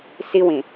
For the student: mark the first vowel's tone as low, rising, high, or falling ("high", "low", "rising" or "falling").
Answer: high